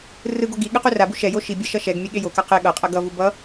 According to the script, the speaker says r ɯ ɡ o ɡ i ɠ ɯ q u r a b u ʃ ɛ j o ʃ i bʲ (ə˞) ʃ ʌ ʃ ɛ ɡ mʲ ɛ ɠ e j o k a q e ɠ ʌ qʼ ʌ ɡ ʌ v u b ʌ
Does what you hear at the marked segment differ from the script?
yes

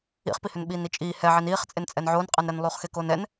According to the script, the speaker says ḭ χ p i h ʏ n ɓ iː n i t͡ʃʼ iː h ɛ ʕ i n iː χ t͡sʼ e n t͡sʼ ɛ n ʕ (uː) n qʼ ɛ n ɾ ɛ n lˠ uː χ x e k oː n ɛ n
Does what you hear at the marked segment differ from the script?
yes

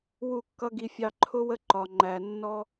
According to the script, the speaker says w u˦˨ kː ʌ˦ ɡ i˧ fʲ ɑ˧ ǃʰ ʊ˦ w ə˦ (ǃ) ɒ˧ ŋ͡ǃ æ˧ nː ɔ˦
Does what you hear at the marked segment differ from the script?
no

